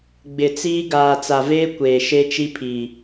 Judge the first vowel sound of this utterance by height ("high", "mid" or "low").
high